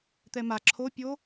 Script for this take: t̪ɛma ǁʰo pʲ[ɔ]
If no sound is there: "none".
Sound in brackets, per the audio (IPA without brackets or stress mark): o